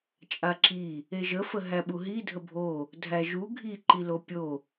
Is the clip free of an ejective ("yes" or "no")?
no